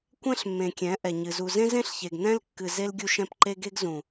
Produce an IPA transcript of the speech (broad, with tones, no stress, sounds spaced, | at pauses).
kʷ ɛ̃˦ ɬ mː ẽ˨ kʲ ɛ̃˨˦ ʔ ɛ˨ ɲ ɨ˨ z u˨ z ẽ˦ z ẽ˦ ɬ ç e˨ ɡ n ɛ̃˦ l kː ɨ˨ z e˦ l ɡʲ u˦ ʃ ɛ̃˦ p ǃ e˦ ɡ e˦ ɡ z ũ˨